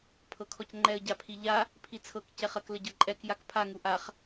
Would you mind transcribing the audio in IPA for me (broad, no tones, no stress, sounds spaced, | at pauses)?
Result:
pʰ ɤ kʰ ɔ c ŋ͡ǃ ɛ ə̯ ɟ a pʰ i ʎ a | pʰ i t͡sʰ ɤ k c ɛ χ ɐ k l ə ɟ ɤ ǃʼ ɛ k j a k pʰ a ŋ u ʔ a χ